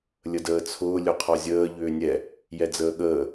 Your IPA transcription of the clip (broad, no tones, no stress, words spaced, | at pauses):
lʲədəːt͡sʰʊː lʲʊqʰɒzʲəː ʎʏːnʲɛ | jɛd͡zəːɠəː